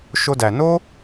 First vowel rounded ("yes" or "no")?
yes